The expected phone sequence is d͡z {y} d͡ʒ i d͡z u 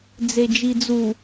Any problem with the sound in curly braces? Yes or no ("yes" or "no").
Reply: yes